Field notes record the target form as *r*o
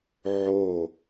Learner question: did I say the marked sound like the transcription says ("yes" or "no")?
no